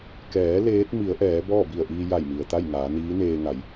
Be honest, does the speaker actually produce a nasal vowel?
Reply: no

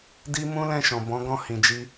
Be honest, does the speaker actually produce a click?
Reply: no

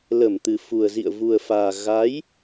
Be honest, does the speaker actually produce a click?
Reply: no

